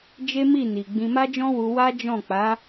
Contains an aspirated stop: no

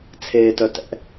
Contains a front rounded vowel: yes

